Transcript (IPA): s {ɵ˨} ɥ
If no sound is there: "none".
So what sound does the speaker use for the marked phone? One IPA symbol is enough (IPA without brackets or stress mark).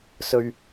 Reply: ɵ˨